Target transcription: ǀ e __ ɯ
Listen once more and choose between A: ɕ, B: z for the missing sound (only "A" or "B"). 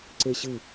A